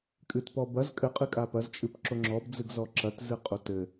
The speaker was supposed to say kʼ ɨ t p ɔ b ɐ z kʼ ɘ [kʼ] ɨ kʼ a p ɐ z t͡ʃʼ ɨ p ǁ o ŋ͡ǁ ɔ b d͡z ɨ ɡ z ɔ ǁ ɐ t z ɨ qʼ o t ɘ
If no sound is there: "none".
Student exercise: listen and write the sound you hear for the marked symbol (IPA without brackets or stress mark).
qʼ